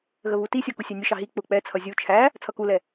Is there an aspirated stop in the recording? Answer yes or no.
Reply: yes